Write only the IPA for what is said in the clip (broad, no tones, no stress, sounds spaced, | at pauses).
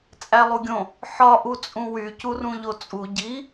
t͡sʼ æ lˠ u ɡʲ õ | ħ ɒ ʔ u t͡sʼ ũ w y c u r ũ ʎ o t͡sʼ u ɟ i